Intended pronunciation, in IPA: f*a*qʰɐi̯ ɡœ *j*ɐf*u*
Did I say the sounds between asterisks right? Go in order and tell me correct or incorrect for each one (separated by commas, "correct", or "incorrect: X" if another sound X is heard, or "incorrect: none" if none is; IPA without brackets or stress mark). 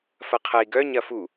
incorrect: ɐ, incorrect: ɲ, correct